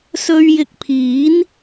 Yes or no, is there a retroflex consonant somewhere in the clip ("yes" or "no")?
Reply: no